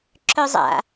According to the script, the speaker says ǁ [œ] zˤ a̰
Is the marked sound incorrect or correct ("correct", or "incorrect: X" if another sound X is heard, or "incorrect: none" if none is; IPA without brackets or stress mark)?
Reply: correct